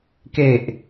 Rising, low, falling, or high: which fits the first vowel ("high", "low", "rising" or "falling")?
low